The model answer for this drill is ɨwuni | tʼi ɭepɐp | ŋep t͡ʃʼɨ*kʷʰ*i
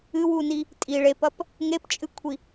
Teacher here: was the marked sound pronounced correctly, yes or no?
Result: yes